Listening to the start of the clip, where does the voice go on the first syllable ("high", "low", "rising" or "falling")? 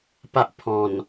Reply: high